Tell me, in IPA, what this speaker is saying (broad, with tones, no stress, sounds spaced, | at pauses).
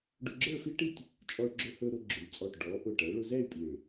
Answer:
ɖ ʊ˧ ɡ͡ǁ ə˞˥˧ f i˥ ʈ i˥˧ tʲ | t͡ʃʼ ɔ˧ ɭ ɡ͡ǁ ɵ˧ h ɵ˧ ɾ ʊ˧ ɡ͡ǁ ʊ˩˧ lʲ t͡sʼ ɔ˧˩ ʈ ɖ ɔ˩˧ ʔ ʊ˧˩ ʈ ɛ˩˧ ɭ ʊ˧ z ɛ˥˧ y̯ pʼ i˧˩ ɭ